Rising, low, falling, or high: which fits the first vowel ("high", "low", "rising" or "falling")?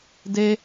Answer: high